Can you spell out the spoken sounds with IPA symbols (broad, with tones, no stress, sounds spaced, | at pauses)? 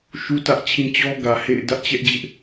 ʃ u˦ t ä˦ ʔ t͡ɕʰ ĩ˦ t͡ɕ ɔ˦ ɡ ä˨ h ḛ˦˨ ɪ̯ d ä˦ ʔ t͡ɕ ɛ˦ ʔ d͡ʑ ɪ˦ ʔ